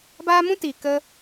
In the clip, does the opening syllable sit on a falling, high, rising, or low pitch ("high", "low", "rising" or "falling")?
high